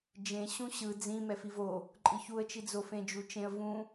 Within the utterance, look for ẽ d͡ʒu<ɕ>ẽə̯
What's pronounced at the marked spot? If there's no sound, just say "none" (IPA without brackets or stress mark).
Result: t͡ʃ